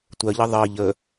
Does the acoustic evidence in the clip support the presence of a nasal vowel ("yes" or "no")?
no